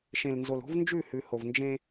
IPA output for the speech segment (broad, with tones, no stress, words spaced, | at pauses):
ʃẽ˨lnzo˨lo̤˦v nd͡ʒʉ˦˨hʉ˨ho˨v nd͡ʒẽ˦